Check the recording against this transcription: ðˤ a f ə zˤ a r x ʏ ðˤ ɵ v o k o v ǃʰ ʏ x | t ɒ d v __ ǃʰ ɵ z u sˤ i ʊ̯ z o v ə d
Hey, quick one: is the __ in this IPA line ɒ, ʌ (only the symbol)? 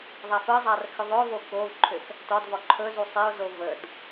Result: ɒ